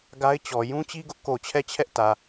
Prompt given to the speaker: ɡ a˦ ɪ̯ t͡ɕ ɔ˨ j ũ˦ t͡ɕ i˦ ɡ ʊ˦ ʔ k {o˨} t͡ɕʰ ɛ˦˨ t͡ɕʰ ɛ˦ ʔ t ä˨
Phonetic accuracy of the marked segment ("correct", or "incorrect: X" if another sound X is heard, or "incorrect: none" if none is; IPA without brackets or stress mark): correct